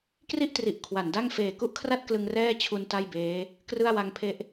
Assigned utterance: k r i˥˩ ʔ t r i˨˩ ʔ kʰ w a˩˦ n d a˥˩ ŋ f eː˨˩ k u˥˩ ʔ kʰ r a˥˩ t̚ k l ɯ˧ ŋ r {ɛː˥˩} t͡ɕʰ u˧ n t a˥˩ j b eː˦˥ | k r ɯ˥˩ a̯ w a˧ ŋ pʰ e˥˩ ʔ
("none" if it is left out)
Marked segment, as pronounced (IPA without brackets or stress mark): ɛː˥˩